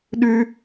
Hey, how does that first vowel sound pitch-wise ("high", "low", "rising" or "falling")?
high